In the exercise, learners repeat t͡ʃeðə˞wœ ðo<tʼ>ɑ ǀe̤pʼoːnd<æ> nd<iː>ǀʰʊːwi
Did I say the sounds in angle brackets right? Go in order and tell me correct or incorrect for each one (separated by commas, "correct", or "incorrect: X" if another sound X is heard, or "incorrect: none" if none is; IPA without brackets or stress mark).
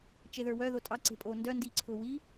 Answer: correct, incorrect: œ, correct